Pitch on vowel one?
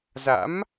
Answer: rising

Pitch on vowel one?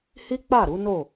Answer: high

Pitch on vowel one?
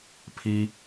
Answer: high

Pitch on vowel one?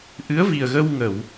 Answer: rising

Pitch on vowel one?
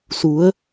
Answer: rising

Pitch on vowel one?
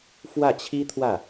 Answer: falling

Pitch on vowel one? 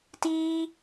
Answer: high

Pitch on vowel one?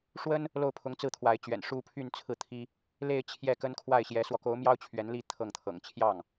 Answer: high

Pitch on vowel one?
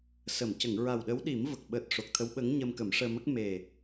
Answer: low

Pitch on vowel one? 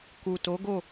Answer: low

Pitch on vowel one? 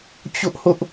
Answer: high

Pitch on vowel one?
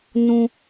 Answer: high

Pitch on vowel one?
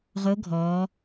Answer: rising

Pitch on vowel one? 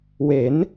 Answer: rising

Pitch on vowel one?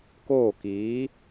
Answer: falling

